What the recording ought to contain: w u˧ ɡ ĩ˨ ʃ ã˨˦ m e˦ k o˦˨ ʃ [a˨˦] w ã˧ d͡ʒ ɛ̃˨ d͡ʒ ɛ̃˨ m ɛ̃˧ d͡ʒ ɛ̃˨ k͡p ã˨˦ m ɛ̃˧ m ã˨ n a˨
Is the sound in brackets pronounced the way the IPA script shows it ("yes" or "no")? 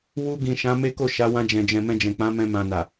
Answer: yes